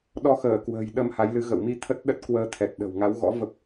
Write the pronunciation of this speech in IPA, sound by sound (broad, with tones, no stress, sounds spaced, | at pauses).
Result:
ɗ ɔ˧ x əː˧˩ k w ə̤ː˨˩ j ɗ ə˧ m h a˨˦ j l ɨ˨˦ ɣ ə̰˧˨ w m i˧ t̪ʰ ə˦˥ t̚ ɗ ə˦˥ t̚ k w əː˧ t̪ʰ ɛ˨˩ t̚ ɗ ə̤˨˩ w ŋ a˨˦ w ɣ ɔ̰˧˥ v ə˦˥ p̚